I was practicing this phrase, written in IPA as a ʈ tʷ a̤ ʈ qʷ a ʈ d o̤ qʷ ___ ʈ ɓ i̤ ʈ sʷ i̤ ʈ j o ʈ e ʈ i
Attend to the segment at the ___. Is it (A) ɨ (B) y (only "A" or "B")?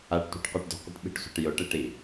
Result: A